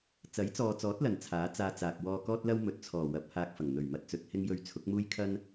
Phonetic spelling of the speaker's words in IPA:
t͡s ɐ˨˥ j t͡s ɔː˨ t͡s ɔː˨˥ t̚ l ɐ˨˩ n t͡sʰ aː˨˥ t͡s aː˧ t͡s aː˨ k̚ w ɔː˧ k ɔː˥ t̚ l ɐ˥ w m ɵ˨ t̚ t͡sʰ ɔː˨˩ w ɐ˨˥ p̚ h aː˧ k̚ f ɐ˨˩ ŋ n̪ ɵ˨˩ ɥ m ɐ˧ t̚ t͡s ɵ˨˥ t̚ h ɪ˥ ŋ j ɵ˧ ɥ t͡sʰ ʊ˨˥ k̚ m uː˥ j kʰ ɐ˥ n

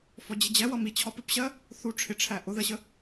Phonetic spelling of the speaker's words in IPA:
f ɔ d͡ʑ ɪ d͡ʑ ɛ w ʌ m i t͡ɕʰ ɒ p ɪ p ɕ ɜ | θ u ʈ͡ʂʰ ɪ ʈ͡ʂʰ æ ʔ ʊ ð ɜ ɕ ə

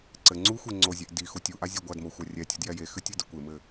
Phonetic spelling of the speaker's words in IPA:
ǀ ɘ ŋ͡ǀ u xʷ e ŋ͡ǀ o zʲ ɛ ʔ d i x u tʲ u ʔ a zʲ ɛ ɡʷ a d m o xʷ a rʲ ɛ tʲ u d j ɛ j e x ɨ tʲ ɨ d ɘ kʷ e m ɘ

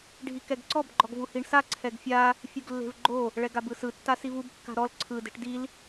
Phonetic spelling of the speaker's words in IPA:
ɖʱ i k ɛ ɡ ǀ ɔ b ɡ͡ǃ ɔ ɡ v u h i ɳ s a ǀʰ ɛ ɡ fʲ a | fʲ u ɡ lː e̤ v ɡ͡ǃ o | ɭ ɛ ɡ a b ɯ s ɯ tː a s i v u b kː a̤ ɾ ɔ l ǀʰ ɯ d e̤ ʈ d i l

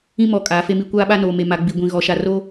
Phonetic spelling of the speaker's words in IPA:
ĩ˦ m ɔ˨ kʼ aː˨˦ f e˦ m i˦ kʷ aː˦ ɓ a˦ n oː˨ m e˨ m a˨ ɡ͡b i˨ ɡʷ ĩ˨ ɣ ɔ˨ ʃ a˨ r o˦

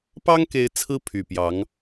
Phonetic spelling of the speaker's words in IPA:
p ɑ˥ ŋ k e˧˥ ɪ̯ t͡sʰ ɹ̩˥ pʰ y˨˩ p j ɑ˧˥ ŋ

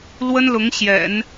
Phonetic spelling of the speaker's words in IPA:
l w ə˥ n l ʊ˧˥ ŋ ɕ j ɛ̰˨˩˦ n

